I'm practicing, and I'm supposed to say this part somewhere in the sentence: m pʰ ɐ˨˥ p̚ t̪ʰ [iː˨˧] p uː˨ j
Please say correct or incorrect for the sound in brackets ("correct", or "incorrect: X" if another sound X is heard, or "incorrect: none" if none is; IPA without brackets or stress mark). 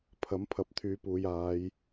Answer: incorrect: yː˨˧